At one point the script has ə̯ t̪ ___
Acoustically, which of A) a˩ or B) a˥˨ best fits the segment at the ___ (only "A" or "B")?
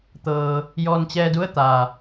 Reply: A